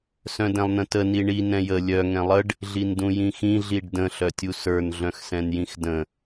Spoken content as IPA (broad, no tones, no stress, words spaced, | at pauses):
sœ̃dɛ̃lˠnə̃tə niɳi nɛ̃jə lʲœ ŋɛ̃lˠəɖ | ɮindũjĩxĩ ɮiɖdə̃ ɬœtʲusə˞n ɮœ̃xsɛ̃njĩxdə̃